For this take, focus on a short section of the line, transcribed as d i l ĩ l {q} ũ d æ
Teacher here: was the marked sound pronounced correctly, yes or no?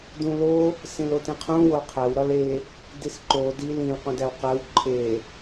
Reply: yes